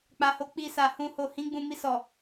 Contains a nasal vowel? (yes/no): yes